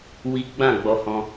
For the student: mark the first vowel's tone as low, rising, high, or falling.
high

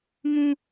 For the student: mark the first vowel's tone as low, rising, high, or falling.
high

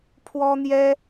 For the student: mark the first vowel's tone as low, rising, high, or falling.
high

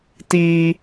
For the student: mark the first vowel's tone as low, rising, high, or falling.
high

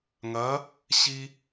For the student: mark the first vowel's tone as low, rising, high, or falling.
rising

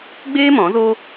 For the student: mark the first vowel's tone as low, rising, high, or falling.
high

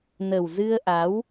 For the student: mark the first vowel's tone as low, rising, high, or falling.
low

